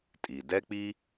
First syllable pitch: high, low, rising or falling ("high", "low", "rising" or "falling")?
low